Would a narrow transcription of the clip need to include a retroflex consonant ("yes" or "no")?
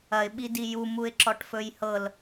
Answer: yes